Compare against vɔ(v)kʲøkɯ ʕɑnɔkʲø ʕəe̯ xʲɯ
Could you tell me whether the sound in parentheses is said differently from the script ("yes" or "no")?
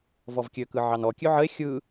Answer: no